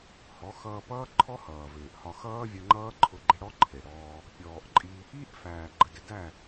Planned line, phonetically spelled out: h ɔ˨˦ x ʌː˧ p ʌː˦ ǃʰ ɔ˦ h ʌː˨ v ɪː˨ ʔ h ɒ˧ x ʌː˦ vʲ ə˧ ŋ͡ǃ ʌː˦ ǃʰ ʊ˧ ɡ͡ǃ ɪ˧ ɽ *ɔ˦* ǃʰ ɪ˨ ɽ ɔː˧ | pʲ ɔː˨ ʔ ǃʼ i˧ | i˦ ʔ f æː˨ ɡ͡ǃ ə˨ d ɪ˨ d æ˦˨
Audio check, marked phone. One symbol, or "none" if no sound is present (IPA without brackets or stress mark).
ɔ˦